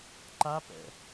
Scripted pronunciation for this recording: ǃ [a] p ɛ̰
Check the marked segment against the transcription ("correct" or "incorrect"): correct